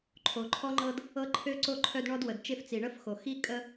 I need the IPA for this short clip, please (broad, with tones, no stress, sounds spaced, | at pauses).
ǃʰ o˩ ǃʰ ɔ˥ ŋ͡ǃ ɤ˦ d | ɤ˥ ǃʰ ø˥ ǀ o˥ ǃʰ œ˦ d ɳ ɔ˥ d w ə˩ d t͡ʃ e˥ f t͡s i˩ ɳ ə˥ f x o˩ x i˥ kʼ ə˦